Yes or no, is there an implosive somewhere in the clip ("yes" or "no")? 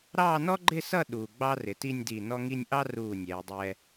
yes